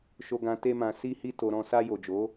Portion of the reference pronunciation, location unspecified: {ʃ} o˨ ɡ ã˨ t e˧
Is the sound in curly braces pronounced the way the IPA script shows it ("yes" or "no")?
yes